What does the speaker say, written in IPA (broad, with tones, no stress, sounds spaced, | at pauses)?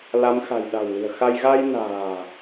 l a˨˦ m x a̤˨˩ j ɗ a̤˨˩ w l i̤˨˩ ə̯ x a˧ j ɣ a˧ j n a̤ː˨˩